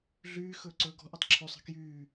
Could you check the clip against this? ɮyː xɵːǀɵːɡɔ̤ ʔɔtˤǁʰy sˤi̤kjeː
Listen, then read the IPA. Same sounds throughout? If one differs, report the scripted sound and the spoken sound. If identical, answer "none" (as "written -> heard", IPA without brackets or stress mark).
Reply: eː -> yː